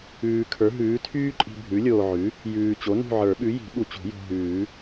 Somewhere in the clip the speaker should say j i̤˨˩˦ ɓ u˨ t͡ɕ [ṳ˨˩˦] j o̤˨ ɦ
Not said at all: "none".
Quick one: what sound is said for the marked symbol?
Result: ṳ˨˩˦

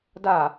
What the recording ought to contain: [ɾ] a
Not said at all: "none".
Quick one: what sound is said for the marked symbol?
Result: d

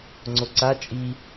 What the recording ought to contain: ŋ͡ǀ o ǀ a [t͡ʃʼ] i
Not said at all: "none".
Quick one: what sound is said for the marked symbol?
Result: t͡ʃʼ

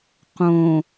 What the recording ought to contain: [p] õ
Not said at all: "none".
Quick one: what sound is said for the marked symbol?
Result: q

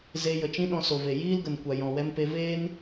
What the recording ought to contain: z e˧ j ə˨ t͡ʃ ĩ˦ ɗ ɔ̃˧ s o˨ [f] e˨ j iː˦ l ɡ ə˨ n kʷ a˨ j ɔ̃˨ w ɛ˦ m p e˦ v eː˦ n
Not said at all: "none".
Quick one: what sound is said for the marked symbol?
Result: v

